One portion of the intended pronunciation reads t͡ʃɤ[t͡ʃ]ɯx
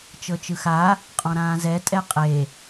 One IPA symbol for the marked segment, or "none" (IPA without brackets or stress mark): t͡ʃ